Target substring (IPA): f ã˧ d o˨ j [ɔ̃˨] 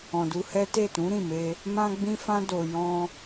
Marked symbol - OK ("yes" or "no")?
no